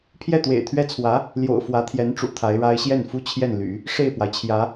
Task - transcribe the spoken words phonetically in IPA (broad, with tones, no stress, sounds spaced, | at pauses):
pʰ j ɛ˥˩ t̪ w ḛ˨˩ ɪ̯ t̪ʰ ɥ ɛ˥ t͡sʰ w ä˧˥ | l j o̰˨˩ ʊ̯ f w ä˧˥ t̪ʰ j ɛ˧˥ n ʈ͡ʂ ṵ˨˩ t̪ʰ a˧˥ ɪ̯ ɻ a˥ ɪ̯ ɕ j ɛ˥˩ n f u˥ t͡ɕʰ j ɛ˥˩ n l y̰˨˩˦ | ʂ e˥˩ ɪ̯ p w a˩ ɪ̯ t͡ɕʰ j ä˧˥